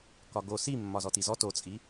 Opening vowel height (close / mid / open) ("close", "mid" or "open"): open